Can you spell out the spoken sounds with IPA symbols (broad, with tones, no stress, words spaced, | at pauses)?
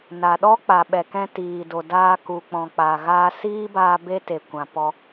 na˨ɗɔ˦k͡pa˨ ɓɛ˨kɛ̃˦tiː˨do˨ daː˧ku˨k͡pɔ̃˨ k͡pa˨ ɣaː˧siː˦baː˧ be˦ te˨kʷã˨ pɔ˧